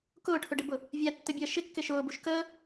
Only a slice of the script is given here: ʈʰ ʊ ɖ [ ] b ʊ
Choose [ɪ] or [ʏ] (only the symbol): ɪ